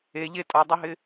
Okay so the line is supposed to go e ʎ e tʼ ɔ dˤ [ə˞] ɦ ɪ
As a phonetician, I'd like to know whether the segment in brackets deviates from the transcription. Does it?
no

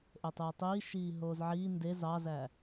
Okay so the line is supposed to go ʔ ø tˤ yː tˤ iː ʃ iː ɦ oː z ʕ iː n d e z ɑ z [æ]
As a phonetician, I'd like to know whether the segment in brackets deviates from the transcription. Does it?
no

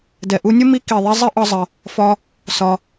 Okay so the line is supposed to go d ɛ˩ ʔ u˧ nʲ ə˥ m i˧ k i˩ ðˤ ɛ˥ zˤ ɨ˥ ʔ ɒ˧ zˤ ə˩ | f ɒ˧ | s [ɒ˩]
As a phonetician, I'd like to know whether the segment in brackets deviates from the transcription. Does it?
no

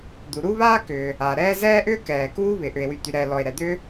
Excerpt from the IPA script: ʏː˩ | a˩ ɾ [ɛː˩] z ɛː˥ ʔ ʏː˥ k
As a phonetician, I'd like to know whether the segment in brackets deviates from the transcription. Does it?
yes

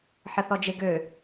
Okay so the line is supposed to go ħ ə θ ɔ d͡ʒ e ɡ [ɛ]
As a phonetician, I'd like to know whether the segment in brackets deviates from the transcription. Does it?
yes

